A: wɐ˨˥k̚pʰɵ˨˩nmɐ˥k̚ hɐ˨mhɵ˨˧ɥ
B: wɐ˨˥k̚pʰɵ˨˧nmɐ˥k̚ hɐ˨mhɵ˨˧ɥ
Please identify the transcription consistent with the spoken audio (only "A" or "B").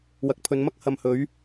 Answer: B